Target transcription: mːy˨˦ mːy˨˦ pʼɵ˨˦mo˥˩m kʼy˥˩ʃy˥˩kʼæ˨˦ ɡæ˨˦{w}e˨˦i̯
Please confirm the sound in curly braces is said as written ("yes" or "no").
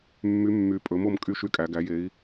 no